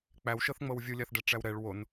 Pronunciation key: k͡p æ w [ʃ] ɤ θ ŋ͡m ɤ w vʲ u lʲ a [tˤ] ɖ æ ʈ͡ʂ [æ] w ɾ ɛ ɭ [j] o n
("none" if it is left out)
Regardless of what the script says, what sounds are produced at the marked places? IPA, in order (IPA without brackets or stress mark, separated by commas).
ʃ, θ, æ, w